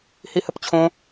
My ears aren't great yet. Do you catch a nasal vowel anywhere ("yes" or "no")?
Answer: yes